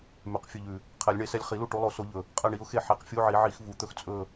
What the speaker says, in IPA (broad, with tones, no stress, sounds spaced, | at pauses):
m ʉ˨˩ q fʲ ɵ˦˨ ʎ ʉ˨˩ | qʰ ɛ˨˩˦ lʲ ɳ e˨˩˦ s ɛ˦˨ lʲ χ i˨˩˦ l u˦˨ ʈ u˨˦ lˠ o˨˦ s o˨˦ ʎ ɵ˨˩ | qʼ ɛ˦˨ ɳ i˨˦ ʊ̯ x e˦˨ ħ e˨˦ q fʲ u˧˥˧ ʕ i˨˩˦ ʕ i˨˩˦ x v u˨˩˦ t̪ ɵ˦˨ x t͡sʼ ɵ˦˨